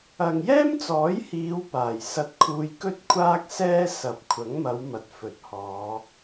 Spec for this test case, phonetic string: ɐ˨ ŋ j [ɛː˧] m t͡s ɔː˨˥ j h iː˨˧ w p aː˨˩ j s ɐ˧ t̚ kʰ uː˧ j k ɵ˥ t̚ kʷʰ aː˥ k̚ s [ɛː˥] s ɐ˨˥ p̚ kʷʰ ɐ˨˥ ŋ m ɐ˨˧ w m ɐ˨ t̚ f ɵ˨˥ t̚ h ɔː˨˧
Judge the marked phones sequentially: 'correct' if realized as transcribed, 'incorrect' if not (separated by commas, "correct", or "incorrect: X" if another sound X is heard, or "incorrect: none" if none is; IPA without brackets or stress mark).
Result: incorrect: ɛː˥, correct